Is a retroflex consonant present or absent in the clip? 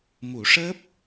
present